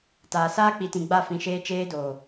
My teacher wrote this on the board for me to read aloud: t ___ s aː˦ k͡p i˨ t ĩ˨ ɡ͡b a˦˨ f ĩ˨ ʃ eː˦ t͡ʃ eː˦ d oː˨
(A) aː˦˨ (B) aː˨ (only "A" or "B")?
B